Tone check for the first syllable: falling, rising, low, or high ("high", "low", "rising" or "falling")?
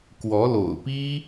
rising